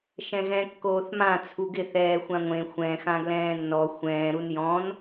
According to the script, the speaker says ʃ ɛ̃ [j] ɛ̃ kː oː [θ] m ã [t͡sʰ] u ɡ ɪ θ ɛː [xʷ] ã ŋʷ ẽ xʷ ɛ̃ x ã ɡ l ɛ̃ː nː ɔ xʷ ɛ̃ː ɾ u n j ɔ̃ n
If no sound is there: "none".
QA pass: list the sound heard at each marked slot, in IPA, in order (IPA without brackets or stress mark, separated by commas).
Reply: ɣ, θ, t͡sʰ, xʷ